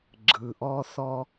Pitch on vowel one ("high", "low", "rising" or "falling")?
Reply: low